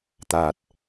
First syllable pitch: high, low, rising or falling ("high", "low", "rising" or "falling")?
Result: low